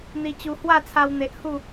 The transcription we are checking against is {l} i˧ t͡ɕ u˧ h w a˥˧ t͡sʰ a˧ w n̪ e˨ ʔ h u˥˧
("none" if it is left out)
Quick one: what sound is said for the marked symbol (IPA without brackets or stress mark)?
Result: n̪